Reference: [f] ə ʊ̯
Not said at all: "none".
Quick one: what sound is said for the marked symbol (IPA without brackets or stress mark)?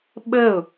ɓ